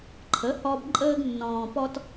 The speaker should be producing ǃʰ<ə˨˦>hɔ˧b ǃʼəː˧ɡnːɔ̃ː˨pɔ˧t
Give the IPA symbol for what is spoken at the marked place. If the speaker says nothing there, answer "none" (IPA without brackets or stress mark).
ə˨˦